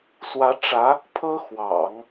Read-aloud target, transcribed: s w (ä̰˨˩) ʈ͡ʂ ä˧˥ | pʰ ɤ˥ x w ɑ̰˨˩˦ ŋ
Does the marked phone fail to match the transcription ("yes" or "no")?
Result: yes